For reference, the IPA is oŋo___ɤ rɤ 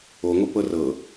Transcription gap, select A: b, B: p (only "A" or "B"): B